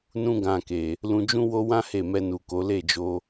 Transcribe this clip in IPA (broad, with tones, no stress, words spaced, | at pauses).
nũ˦ ɡã˧ke˨ | lũ˧d͡ʒũ˦wo˦ wã˦ he˦˨ mɛ˧nu˨ko˨˦ le˦˨d͡ʒo˧